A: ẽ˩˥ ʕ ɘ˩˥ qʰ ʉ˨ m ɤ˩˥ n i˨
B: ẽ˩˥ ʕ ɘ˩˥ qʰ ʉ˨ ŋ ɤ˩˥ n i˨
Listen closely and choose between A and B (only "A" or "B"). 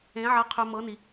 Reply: A